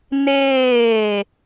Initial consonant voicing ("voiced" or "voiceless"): voiced